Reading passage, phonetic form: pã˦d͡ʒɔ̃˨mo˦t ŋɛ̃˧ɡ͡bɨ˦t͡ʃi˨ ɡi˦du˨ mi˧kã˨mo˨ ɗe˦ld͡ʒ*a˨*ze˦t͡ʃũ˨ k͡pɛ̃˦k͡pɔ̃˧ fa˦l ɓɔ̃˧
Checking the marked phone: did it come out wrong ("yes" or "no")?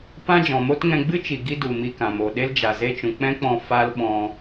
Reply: no